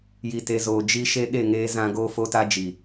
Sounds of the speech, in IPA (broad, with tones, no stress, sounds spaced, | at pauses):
j i˨ t e˨ z oː˨ d͡ʒ i˦ ʃ e˦ ɗ e˦˨ ŋ eː˦ z ã˦ ɡ oː˦ f o˦ t a˦ d͡ʒ i˨